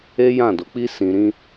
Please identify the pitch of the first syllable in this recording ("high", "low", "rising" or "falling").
high